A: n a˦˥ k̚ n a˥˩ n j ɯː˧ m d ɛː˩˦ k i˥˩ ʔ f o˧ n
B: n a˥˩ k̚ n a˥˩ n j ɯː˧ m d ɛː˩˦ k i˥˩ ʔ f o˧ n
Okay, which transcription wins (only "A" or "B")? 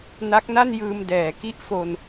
A